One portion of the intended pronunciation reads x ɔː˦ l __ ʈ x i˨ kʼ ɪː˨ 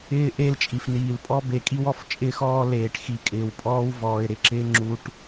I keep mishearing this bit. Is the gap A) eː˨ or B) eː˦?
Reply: A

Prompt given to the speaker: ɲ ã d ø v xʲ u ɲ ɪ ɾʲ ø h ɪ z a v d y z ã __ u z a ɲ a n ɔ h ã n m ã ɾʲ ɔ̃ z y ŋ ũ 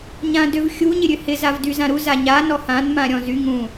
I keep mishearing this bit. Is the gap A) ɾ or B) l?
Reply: A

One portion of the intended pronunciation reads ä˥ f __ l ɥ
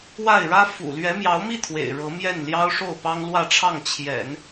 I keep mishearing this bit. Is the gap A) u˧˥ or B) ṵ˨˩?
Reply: B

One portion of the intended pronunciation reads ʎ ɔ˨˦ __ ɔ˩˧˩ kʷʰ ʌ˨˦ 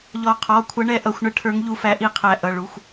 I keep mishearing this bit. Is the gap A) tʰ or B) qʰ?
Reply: B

